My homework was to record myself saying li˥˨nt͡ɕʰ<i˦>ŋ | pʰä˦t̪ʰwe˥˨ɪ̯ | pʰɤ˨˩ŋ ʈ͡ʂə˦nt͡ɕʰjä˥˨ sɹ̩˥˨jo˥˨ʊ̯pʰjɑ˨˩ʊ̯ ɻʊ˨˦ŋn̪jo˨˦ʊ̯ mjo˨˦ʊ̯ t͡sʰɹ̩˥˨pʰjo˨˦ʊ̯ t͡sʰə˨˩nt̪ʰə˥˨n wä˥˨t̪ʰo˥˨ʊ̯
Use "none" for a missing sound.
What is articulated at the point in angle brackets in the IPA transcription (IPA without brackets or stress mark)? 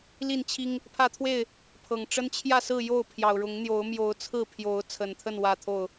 i˦